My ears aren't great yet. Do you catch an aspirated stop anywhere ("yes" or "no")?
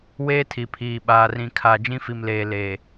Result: yes